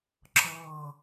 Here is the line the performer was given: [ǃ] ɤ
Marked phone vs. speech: incorrect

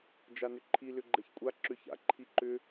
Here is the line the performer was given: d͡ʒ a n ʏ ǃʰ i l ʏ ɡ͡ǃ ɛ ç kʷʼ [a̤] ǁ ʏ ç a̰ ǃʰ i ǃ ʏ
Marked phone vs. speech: incorrect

